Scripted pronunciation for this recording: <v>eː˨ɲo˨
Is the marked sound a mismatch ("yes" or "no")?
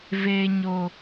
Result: no